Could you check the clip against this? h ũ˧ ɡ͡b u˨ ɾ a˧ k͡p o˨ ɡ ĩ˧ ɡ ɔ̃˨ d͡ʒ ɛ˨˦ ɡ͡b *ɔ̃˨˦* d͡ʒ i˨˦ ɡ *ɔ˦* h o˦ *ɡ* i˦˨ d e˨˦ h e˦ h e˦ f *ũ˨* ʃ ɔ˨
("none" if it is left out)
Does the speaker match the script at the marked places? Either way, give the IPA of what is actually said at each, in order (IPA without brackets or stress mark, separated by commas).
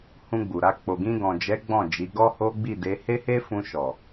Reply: ɔ̃˦˨, ɔ˦, ɡ͡b, ũ˧